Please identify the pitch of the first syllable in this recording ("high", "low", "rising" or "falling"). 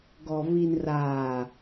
low